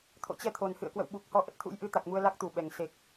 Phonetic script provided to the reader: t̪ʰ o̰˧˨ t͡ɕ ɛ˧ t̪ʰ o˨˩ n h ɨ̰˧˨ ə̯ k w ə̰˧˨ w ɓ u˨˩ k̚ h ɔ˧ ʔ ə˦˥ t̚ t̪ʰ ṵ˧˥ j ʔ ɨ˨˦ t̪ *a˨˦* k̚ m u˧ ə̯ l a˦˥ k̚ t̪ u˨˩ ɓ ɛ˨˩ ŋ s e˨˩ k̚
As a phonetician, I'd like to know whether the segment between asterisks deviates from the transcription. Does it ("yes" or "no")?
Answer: yes